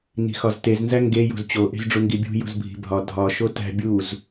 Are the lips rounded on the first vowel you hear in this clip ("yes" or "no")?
no